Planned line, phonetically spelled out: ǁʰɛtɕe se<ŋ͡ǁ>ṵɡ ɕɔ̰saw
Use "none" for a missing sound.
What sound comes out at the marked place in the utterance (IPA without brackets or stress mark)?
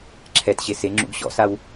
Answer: ŋ͡ǁ